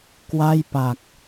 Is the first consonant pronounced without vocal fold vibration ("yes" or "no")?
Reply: yes